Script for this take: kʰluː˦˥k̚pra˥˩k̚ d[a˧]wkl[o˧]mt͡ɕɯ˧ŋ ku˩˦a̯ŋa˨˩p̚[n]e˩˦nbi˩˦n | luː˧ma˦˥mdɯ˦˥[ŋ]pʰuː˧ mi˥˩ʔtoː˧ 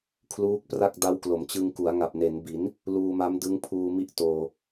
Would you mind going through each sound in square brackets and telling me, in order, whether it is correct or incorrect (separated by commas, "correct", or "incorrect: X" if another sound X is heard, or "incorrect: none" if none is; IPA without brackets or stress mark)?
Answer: incorrect: a˦˥, incorrect: o˩˦, correct, correct